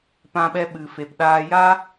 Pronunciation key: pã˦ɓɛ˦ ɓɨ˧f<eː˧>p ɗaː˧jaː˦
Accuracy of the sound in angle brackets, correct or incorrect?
incorrect